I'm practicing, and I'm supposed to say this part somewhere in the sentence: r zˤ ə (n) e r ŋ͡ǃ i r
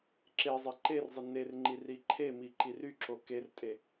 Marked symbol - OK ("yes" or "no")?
yes